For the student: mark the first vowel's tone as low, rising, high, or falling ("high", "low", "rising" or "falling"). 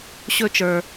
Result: falling